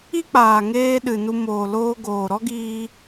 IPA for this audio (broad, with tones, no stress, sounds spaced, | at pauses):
i˦ k͡p aː˨ ŋ eː˧ ɗ ɨ˨ n u˧ m oː˨ l oː˧ ɡ oː˨ ɾ ɔ˦ ɡ iː˧